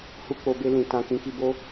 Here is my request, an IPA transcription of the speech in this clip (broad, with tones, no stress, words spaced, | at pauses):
hu˧k͡po˨be˧ lĩ˨ tã˨ kĩ˨˦ki˧bo˦